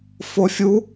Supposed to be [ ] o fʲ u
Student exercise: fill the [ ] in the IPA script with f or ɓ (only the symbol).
f